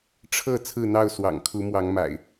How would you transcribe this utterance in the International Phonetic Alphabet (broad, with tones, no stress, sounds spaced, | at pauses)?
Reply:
ʈ͡ʂʰ ɤ˥˨ t͡sʰ ɹ̩˥˨ n̪ ɑ˥˨ ʊ̯ s w ɑ̰˨˩ ŋ kʰ u˨˦ m w ɑ˨˦ ŋ m a̰˨˩ ɪ̯